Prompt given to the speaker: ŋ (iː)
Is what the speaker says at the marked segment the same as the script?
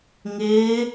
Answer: no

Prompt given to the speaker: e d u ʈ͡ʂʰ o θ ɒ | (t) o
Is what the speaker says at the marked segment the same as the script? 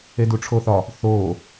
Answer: no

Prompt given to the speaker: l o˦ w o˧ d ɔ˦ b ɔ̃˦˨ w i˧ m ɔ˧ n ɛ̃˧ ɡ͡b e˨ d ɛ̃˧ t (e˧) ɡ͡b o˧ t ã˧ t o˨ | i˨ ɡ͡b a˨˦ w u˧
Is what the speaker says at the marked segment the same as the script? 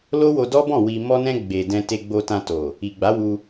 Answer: yes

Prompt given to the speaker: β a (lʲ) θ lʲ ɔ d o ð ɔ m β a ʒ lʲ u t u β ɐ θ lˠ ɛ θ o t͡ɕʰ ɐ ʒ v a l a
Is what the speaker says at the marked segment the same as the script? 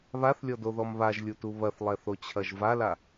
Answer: no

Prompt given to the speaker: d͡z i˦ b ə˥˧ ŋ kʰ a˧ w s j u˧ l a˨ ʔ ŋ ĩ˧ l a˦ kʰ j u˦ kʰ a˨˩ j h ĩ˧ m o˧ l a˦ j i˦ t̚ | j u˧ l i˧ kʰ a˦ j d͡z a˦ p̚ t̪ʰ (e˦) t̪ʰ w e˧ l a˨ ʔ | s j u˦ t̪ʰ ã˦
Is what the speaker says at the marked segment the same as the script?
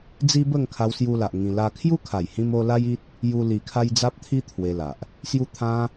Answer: no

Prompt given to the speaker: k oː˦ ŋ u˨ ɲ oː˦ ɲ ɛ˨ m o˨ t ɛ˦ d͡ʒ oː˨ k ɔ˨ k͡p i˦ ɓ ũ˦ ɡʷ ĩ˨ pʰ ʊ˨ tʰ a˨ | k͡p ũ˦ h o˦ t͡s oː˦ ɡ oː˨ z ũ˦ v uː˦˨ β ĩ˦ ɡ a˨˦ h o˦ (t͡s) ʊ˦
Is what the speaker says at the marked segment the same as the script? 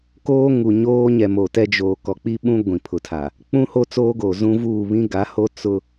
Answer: yes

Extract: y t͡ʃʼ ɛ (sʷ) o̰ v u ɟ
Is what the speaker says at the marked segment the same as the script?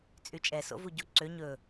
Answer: no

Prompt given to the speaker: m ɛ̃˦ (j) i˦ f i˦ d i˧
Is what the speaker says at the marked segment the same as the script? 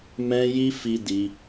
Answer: yes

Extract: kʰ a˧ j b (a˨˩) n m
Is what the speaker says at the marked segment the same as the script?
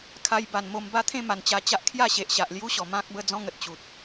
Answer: yes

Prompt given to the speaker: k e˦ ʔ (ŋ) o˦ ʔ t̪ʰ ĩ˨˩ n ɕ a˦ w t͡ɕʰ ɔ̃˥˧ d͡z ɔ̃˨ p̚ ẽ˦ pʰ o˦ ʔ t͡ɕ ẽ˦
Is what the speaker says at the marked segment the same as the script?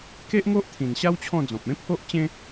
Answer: yes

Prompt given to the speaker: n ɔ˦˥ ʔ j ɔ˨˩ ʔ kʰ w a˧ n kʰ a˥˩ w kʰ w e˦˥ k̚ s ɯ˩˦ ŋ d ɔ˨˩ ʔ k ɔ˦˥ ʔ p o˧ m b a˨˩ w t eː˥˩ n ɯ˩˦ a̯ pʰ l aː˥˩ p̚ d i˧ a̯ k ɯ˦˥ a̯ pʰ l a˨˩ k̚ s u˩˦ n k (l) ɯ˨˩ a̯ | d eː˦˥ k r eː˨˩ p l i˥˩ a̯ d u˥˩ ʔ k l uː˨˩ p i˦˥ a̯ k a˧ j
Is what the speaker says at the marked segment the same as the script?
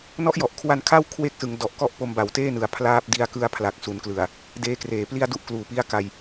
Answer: yes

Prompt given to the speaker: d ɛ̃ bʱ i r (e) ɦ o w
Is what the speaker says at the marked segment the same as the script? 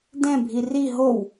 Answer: no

